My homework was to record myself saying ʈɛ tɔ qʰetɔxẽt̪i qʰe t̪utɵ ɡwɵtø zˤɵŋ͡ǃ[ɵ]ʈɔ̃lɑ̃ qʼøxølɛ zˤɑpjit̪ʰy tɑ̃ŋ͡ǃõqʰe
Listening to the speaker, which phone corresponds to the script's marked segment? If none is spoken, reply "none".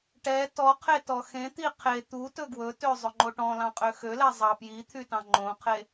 o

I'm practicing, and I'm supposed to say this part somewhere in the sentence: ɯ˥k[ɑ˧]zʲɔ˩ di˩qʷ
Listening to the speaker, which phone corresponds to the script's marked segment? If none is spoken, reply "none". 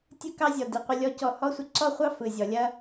ɑ˥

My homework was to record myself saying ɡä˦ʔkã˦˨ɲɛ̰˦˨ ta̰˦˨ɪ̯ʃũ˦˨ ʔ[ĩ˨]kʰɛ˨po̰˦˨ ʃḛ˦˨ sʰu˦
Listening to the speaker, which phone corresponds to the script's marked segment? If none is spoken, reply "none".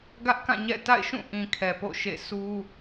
ĩ˨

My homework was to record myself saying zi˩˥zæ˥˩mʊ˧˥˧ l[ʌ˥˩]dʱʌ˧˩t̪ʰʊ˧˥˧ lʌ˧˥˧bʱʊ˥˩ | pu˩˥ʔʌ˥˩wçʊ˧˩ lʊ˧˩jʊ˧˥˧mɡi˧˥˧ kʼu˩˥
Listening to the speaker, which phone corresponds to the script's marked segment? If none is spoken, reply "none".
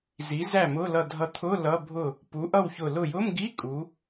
ʌ˧˩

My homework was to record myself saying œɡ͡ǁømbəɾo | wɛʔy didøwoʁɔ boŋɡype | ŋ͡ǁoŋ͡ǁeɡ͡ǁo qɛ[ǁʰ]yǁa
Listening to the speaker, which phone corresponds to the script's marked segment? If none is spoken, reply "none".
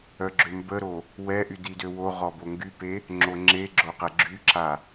ɡ͡ǁ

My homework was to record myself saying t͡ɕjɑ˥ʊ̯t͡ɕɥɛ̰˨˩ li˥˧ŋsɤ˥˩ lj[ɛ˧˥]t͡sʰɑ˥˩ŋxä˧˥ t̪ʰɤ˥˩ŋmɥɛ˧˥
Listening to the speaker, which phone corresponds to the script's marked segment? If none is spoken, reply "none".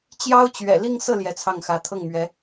ɛ˧˥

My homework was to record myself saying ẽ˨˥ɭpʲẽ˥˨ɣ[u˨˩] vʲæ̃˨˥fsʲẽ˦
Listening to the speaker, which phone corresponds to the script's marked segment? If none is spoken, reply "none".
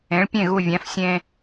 u˥˨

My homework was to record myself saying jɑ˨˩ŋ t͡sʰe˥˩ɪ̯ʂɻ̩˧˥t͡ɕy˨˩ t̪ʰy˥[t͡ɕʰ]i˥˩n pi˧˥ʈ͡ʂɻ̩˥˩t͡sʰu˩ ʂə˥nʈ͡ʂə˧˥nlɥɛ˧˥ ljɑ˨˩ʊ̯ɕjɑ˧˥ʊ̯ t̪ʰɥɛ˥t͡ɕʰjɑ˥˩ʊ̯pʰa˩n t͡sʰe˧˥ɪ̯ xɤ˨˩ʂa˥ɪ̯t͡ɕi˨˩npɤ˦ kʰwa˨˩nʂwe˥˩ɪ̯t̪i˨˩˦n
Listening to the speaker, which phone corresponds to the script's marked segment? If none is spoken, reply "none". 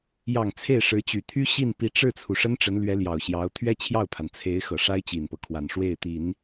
ɕ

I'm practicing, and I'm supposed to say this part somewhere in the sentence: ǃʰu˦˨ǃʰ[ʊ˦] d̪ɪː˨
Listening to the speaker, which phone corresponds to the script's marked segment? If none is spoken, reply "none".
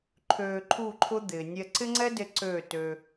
ʊ˦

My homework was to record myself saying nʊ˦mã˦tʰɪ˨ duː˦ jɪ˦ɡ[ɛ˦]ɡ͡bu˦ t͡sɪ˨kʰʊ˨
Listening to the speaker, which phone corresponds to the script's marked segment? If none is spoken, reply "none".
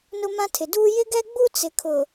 ɛ˦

